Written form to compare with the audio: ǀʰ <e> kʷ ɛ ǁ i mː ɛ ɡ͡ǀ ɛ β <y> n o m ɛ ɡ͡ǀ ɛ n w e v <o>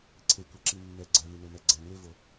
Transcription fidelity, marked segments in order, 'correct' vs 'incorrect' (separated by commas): correct, correct, correct